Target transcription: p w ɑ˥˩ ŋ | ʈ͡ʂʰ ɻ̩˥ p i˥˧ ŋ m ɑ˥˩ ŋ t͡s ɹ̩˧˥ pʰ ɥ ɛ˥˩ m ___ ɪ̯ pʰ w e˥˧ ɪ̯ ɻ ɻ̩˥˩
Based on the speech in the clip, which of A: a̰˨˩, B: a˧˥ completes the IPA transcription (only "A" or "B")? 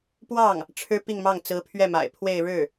A